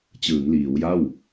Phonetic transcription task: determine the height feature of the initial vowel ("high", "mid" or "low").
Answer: high